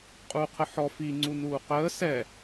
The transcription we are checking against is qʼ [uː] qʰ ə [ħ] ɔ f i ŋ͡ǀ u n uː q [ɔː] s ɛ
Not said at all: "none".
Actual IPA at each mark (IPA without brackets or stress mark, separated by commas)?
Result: uː, ħ, əː